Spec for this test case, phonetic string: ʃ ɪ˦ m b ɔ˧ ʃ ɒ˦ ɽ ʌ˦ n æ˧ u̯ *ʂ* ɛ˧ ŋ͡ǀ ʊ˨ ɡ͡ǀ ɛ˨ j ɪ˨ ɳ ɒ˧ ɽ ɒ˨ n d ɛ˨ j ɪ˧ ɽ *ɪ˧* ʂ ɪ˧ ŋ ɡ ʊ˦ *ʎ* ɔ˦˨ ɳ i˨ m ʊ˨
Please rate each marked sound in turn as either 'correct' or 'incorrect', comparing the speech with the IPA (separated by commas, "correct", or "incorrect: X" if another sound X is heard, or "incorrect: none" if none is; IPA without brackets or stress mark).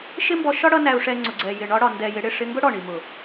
correct, incorrect: ɪ˦˨, incorrect: ɽ